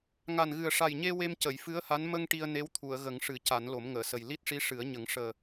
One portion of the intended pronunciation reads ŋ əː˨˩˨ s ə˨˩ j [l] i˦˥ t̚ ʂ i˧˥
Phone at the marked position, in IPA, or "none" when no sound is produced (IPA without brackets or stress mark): l